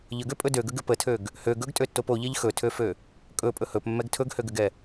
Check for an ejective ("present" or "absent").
present